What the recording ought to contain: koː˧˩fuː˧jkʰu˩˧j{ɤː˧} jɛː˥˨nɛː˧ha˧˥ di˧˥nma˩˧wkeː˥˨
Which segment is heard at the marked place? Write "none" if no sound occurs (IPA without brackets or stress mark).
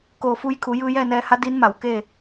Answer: ɯː˧